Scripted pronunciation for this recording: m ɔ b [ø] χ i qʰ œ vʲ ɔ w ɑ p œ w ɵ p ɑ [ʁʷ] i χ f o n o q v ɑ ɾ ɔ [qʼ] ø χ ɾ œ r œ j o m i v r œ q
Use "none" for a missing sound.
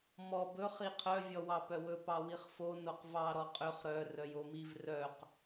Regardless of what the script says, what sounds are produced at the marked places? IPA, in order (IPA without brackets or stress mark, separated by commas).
ɵ, w, qʼ